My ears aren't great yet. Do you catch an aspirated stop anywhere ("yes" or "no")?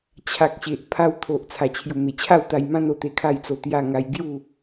yes